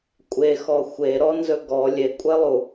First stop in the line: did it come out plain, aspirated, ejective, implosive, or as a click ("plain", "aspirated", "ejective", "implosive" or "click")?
ejective